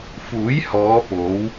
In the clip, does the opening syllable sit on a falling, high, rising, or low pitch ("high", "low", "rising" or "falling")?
rising